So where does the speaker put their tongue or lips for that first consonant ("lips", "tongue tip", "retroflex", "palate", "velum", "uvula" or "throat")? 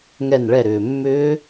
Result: velum